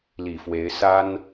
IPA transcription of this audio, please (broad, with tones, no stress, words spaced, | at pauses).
li˨˩fwe˧˥ɪ̯ sa˥n